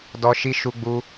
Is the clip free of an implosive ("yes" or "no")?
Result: yes